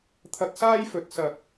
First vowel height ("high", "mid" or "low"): low